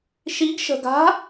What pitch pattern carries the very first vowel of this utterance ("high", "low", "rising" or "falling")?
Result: rising